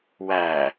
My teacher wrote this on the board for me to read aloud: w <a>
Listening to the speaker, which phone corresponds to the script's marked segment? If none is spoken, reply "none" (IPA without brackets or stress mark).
æ